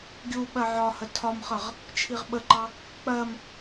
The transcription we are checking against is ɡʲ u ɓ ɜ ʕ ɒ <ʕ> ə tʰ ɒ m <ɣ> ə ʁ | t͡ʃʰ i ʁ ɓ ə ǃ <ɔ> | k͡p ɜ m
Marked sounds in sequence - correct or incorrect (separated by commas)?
incorrect, incorrect, incorrect